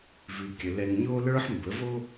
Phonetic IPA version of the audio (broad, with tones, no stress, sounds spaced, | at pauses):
v ʉ˨ kʲ ə˨ l ɛ˨ ŋ ɲ o˦ l ə˞˦ ħ m b ə˨˦ v o˦